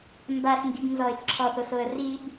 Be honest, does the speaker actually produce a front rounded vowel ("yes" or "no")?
no